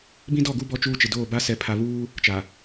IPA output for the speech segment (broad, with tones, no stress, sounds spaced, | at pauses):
b ĩ˦ d ɔ˦˨ ɡ u˦ b ɔ˦ t͡ʃ uː˦ t͡ʃ ɪ˨ d oː˦˨ b a˦ s ɛ˨ pʰ a˨ β uː˦ | t͡ʃ a˨